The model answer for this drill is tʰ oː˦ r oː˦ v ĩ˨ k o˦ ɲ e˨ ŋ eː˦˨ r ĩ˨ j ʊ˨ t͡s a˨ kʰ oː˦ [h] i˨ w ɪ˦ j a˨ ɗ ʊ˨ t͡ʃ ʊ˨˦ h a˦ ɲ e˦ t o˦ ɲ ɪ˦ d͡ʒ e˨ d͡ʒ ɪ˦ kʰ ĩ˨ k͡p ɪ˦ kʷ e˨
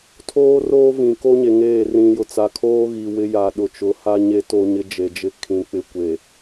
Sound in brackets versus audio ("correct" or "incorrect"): incorrect